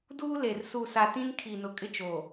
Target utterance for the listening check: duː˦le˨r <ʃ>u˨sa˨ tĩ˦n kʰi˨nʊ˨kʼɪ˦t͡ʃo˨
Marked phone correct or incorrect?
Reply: incorrect: s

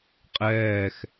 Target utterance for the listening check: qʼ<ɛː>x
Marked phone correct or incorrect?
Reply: correct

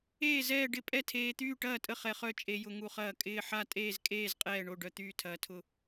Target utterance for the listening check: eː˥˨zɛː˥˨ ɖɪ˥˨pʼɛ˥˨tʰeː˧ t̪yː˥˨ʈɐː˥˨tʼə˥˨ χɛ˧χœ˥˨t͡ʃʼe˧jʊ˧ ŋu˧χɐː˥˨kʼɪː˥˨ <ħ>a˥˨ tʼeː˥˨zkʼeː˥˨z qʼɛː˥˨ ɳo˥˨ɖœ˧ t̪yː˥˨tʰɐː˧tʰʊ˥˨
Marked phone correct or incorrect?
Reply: correct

